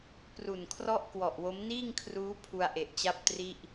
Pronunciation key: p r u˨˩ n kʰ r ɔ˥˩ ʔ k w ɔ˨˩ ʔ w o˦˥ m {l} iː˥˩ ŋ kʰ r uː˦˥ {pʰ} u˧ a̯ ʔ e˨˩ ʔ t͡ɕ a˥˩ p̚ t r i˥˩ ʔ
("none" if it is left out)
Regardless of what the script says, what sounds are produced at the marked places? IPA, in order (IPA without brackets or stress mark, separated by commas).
n, pʰ